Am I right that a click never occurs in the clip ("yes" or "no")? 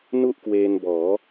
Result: yes